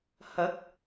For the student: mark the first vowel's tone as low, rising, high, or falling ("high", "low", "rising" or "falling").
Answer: rising